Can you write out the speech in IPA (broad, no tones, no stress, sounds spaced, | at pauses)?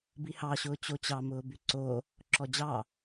b i h ɑ ɕ ʊː t͡ɕ o t͡ɕ ɑ m ʊː b y ǀ o | ǁ ɔ d͡ʑ ɑ